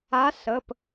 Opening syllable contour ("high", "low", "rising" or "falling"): rising